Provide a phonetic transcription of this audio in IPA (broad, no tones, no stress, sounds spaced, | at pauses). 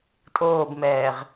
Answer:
tʼ oː b m ɛː ʁ